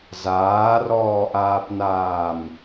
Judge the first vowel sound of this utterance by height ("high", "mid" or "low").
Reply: low